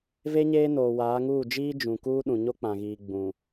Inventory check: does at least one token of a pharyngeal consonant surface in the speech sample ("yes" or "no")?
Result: no